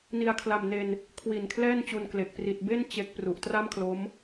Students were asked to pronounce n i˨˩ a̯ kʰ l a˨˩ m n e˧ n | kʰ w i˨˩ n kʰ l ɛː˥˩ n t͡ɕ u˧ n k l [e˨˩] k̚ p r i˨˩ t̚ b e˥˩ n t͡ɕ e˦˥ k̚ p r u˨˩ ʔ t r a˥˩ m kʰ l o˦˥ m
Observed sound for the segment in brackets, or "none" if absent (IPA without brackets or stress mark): e˨˩